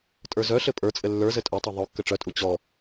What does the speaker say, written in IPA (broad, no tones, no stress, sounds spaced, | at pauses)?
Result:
tʼ ə˞ z œ ɬ ɘ pʼ ə˞ t͡sʼ ɘ lː ə˞ z ɘ tʼ œ tˤ œ ðˤ o kː ɘ ʈ͡ʂ œ tʼ u t͡ɕ ɔ